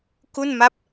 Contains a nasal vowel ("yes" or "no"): no